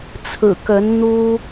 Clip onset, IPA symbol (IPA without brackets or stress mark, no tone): t͡sʰ